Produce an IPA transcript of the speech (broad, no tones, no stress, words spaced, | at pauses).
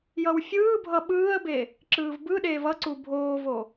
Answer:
jʌwfʲɯːbʱʌ ɓɯːə̯be | ǁɯːvbɯɗeːv ʌǀu bʱoːvo